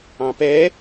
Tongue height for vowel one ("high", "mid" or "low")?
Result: low